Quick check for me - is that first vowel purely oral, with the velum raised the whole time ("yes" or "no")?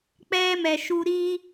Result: yes